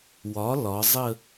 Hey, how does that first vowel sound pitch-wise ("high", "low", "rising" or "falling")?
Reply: rising